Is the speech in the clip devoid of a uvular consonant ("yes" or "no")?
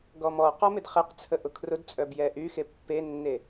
no